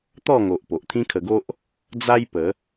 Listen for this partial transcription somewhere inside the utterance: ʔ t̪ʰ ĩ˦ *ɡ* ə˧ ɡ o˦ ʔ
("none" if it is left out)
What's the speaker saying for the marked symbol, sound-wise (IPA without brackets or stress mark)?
kʰ